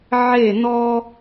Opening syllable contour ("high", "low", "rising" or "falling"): falling